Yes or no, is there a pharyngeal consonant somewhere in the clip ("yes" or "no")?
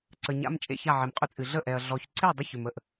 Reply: yes